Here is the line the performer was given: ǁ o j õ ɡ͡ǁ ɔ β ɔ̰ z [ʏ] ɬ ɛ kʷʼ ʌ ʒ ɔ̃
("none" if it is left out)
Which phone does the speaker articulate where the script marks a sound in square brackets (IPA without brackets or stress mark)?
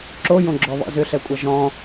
ʏ